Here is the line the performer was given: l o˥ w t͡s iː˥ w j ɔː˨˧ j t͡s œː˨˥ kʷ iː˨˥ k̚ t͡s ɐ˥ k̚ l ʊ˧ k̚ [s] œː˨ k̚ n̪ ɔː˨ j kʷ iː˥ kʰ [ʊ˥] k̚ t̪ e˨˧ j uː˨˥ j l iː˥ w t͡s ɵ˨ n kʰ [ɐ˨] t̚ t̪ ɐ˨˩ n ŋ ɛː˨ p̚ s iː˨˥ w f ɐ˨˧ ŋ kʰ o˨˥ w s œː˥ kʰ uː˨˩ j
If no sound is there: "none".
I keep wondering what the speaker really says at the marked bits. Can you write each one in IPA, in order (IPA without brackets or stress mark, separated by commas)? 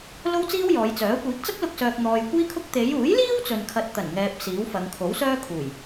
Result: s, ʊ˥, ɐ˧